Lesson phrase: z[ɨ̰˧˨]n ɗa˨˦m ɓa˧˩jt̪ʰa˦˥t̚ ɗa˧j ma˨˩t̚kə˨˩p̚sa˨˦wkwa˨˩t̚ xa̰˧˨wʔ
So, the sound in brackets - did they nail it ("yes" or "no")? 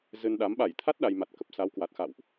no